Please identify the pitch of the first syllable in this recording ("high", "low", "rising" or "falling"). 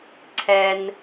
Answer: low